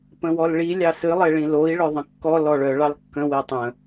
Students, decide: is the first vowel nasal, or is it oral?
nasal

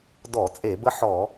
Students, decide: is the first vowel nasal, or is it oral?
oral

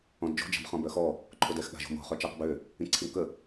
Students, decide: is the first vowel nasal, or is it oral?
nasal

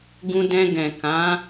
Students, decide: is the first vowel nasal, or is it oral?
nasal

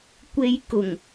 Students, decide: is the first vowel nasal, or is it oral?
oral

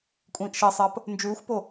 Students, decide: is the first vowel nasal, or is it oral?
nasal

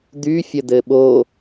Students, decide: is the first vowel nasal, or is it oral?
oral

